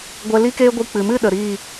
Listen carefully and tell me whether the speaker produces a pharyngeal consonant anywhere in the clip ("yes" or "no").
no